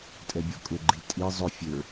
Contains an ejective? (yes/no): yes